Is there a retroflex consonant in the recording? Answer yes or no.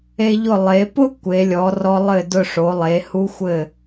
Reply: yes